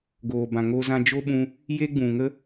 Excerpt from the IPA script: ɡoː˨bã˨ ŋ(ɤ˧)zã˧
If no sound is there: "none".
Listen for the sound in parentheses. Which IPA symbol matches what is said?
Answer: o˧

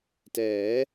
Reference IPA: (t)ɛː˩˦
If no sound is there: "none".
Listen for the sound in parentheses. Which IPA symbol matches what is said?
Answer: t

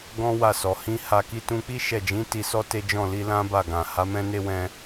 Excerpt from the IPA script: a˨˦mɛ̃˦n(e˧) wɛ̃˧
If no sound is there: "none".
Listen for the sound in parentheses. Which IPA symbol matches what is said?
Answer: e˦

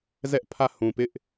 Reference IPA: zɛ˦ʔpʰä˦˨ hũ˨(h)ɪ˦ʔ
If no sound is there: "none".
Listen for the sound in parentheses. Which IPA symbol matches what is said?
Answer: p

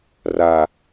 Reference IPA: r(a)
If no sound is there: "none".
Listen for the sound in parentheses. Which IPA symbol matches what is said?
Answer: a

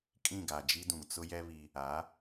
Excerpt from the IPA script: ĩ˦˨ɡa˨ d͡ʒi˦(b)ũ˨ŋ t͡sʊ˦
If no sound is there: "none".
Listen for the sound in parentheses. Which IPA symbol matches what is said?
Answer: d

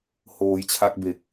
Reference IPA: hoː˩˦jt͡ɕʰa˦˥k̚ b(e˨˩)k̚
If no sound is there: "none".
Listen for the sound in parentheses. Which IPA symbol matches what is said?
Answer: e˨˩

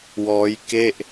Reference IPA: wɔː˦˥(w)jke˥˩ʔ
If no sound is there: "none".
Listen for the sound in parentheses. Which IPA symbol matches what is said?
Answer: none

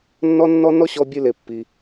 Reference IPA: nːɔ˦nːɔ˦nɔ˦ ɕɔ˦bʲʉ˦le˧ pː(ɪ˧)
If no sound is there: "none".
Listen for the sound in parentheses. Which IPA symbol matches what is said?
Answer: i˧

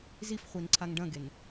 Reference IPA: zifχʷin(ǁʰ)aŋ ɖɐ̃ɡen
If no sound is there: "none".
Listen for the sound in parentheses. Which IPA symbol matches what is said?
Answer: ǀʰ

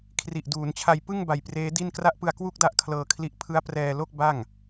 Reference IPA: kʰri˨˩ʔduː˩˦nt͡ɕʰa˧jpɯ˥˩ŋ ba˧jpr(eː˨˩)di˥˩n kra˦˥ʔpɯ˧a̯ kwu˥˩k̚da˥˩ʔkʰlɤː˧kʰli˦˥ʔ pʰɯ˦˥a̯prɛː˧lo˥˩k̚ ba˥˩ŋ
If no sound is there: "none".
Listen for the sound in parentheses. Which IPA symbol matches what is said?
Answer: eː˦˥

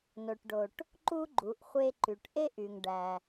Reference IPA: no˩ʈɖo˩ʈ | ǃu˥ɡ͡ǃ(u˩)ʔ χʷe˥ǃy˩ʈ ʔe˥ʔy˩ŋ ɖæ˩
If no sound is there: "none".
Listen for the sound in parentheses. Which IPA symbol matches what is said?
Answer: u˩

